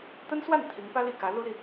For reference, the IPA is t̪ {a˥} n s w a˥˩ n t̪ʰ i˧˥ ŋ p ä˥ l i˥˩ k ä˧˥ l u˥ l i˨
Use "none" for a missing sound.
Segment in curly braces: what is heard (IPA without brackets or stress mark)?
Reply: ə˥